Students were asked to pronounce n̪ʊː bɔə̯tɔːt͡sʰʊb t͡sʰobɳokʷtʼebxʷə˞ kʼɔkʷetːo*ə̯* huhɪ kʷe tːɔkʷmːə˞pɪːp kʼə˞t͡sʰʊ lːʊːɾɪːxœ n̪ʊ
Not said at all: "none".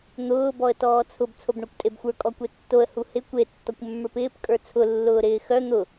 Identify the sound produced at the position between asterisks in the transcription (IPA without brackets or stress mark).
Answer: ə̯